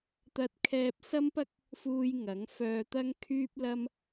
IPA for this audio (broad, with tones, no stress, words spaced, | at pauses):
t̪ɐ˧t̚kʰɛː˧p̚sɐ˥mpɐ˥k̚ | fuː˧j ŋɐ˨˥ŋ fœː˧t̪ɐ˥ŋkʰyː˥p̚lɐ˥m